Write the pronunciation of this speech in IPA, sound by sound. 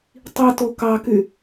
tˤito kɑky

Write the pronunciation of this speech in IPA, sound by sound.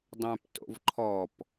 dˤœ̃pto̰v ǃʰɔp

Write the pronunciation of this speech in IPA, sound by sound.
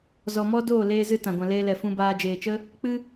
zɔ˧mɔ˦ doː˦˨leː˧zɨ˧ tã˨ɡʷã˨leː˧lɛ˨ fũ˧baː˧d͡ʒeː˨t͡ʃə˦ | k͡pɨ˦

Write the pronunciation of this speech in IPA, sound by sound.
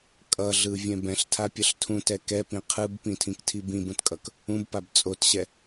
kʼʌɮɯvʲɛ̃ bɛ̃ɬtʰapʲʌɬ tʰũtɛ kɛpĩ qʰɯbpĩtʰĩktʰi bĩbũtkʼʌk | ũbpab t͡sʼotɕɛ

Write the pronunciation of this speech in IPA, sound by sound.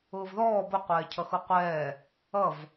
ʊːvðɔː bʊ qʷɛːcʰʌxuqʷɛː | ʌv

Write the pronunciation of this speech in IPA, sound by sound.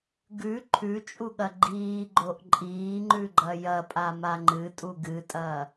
ɡʉ ǃʰʉt͡ʃʼuɠɐ ɡ͡ǃiːɡ͡ǃoʔ ǃʼiːŋ͡ǃʉɡ͡ǃɐ jɐpʼama ŋ͡ǃɨtʼu ɡɨtʼɐː

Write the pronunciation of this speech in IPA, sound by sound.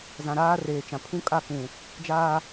zã˨ɾaː˦reː˨t͡ʃã˨ pʰũ˦kʼa˦˨kũ˨ | d͡ʒaː˦

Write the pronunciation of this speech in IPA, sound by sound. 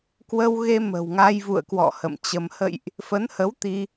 kwə˧wɣe˧ mə̤˨˩wŋa˧jvṵ˧˨ə̯kwɔ̰˧˨ hə̰˧˨mt͡ɕə˧m hə̰˧˨jʔ | fə˨˦nhə˨˦w t̪i˧

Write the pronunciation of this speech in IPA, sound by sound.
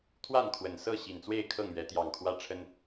t̪ʰwa˥˨nkʰwə˨˩nsɤ˥˨ ɕi˨˩nt͡swe˥˨ɪ̯ kʰɤ˥˨ŋɥɛ˨˦ t̪jɑ˨˩ŋkʰwä˦ʈ͡ʂʰə˦n

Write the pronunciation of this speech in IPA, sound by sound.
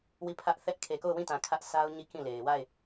wi˦˨pʰä˦ʔθɛ˦ʔ kʰe˨ko˦˨ʊ̯wĩ˦˨tã˨ kʰä˦ʔsʰa˦ʊ̯ ɲi˦˨ kĩ˦˨le˨ɪ̯ wa˦˨ɪ̯

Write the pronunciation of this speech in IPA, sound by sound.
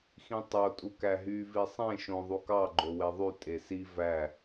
xĩtˤo tʼukæɦy visˤẽ ʃõ ðˤukɑ ɡ͡ǃoweðˤy tʼesi væ

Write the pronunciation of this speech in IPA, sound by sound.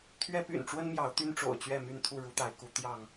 t̪ʰɥɛ˦py̰˨˩nʈ͡ʂwə˦nmjɑ˨˦ʊ̯ t̪y˦nʈ͡ʂo̰˨˩ʊ̯ t͡ɕɥɛ˥˨my˥˨nt̪ʰu˥˨ ɻu˨˦t̪a˨˦ɪ̯ku˨˦ t̪jɑ˥˨ŋ

